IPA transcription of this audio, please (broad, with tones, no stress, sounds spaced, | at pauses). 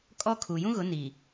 kʼ ɔ˦ kʰ u˨ j ũ˦ ɣ ʊ˨˦ n i˨